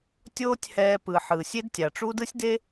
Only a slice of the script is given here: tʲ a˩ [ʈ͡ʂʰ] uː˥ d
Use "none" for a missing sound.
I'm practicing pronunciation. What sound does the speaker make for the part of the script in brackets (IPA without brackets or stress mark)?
ʈ͡ʂ